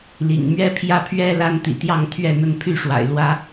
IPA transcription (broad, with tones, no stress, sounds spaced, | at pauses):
l ḭ˨˩ ŋ m ɥ ɛ˦ pʰ j ä˦ pʰ ɥ ɛ˦ l a˦ n t̪ ḭ˨˩ t̪ j ɑ˥˨ ŋ t̪ʰ ɥ ɛ˥˨ n̪ ə˥˨ n pʰ y˥˨ ʂ w a̰˨˩ ɪ̯ l w ä˦